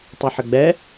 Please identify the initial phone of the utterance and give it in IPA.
tˤ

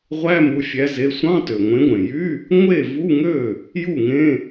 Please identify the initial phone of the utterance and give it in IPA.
ʁʷ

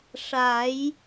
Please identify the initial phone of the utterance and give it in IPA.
ʂ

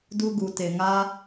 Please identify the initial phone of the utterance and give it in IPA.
d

